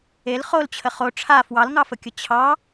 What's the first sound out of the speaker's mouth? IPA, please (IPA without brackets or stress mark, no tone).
e